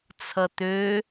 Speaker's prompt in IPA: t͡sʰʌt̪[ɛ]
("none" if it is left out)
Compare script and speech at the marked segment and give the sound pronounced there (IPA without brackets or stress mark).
ø